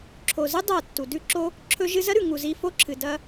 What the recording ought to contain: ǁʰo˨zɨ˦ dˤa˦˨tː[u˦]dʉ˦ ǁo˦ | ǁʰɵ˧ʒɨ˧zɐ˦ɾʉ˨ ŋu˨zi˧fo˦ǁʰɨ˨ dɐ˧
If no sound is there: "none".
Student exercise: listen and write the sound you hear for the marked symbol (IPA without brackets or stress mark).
u˨